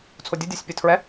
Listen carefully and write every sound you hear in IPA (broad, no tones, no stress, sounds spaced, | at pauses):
t͡sʰ o dʲ ʊ dʲ o sʲ pʲ ʊ tʰ ɹ ɛ